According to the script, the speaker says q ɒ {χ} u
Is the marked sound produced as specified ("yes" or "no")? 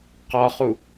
yes